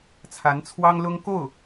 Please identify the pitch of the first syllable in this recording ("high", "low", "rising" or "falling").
rising